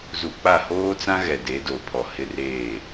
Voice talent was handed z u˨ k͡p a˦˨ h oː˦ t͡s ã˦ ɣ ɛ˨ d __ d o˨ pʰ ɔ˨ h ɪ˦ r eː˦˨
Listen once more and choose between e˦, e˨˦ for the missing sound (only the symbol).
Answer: e˨˦